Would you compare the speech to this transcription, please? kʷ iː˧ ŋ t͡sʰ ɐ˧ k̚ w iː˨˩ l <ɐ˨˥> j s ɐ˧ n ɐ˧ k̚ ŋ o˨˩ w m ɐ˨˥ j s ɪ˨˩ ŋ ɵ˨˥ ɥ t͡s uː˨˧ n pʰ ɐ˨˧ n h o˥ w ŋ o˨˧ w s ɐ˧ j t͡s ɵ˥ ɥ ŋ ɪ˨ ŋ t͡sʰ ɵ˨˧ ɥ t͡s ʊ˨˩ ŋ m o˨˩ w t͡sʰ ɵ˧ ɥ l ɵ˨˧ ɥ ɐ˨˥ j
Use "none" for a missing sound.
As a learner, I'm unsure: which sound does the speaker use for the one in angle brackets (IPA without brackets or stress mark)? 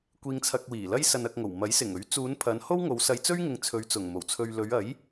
ɐ˥